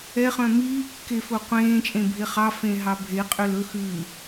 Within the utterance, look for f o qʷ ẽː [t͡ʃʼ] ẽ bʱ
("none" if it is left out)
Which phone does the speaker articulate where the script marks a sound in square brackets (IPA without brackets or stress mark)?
t͡ʃʼ